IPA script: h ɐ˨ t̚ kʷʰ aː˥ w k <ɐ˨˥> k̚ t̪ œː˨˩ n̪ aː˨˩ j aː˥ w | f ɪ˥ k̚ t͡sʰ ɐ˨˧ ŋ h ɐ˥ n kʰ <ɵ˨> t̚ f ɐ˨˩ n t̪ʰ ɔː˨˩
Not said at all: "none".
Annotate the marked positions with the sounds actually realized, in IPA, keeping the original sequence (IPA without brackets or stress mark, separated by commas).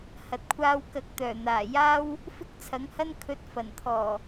ɐ˨˥, ɵ˧